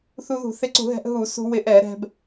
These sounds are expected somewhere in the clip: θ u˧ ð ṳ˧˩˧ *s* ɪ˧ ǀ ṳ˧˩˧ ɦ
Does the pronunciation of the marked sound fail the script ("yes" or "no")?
yes